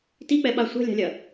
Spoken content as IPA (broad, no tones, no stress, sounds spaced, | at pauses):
t i k͡p ɛ ɓ a sʷ ɛ̤ lʲ a̤ lʲ ɐ